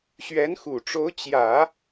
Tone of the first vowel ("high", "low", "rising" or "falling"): rising